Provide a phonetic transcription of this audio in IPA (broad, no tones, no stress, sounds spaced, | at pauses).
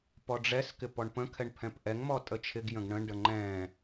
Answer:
p ɔ ɖ͡ʐ ɛ s k ɪ p ɔ ɳ p ə̃ kʰ ɛ ɳ pʰ ɛ̃ p ʔ ɛ ŋ m ɔ tʼ ə t͡ʃʰ ɪ ɡ j ə̃ ɡ ɳ ə̃ ɳ ɖ ə ŋ͡ǃ ɛ̃